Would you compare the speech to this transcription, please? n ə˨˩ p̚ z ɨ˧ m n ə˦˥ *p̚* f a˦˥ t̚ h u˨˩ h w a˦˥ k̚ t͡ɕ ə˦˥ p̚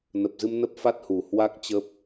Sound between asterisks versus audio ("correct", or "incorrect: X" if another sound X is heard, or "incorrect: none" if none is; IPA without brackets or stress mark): correct